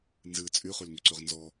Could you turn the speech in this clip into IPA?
nzɨ t͡sʼyχylŋyǀyʁ nzɔ

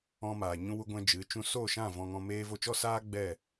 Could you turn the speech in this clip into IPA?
ɔ̃˧ maː˨ ɲũ˧wu˧ɡʷɛ̃˧ d͡ʒɨ˨˦t͡ʃũ˧ so˦˨ʃã˦˨ vɔ̃˧ŋɔ̃˧ meː˦vo˦ t͡ʃɔ˦saː˦ ɡ͡bɛ˦˨

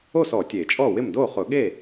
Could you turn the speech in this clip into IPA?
o˥˩sɔ˨˩˦ tʲe˨˩˦t͡ʃʼɔ˥˩wɪ˥˩m do˥˩χʊ˨˩˦ɠe˥˩

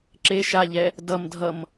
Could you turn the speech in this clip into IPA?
ǁe ʃaʎɛ | dʌm dʱʌm

